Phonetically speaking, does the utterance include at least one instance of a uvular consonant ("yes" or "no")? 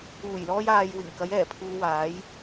no